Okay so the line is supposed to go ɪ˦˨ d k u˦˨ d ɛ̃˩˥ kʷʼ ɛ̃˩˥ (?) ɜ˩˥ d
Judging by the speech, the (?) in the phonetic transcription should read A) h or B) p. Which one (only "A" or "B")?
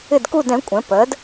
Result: B